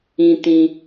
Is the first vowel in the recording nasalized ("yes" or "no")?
yes